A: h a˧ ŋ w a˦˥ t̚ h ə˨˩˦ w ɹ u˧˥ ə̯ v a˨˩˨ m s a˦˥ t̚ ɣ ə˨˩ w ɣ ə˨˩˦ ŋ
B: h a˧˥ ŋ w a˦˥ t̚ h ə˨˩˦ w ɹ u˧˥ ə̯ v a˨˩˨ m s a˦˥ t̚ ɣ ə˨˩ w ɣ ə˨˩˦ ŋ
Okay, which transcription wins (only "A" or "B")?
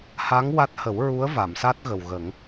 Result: B